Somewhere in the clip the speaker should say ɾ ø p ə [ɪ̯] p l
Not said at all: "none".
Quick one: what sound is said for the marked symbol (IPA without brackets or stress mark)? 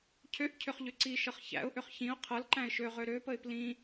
ɪ̯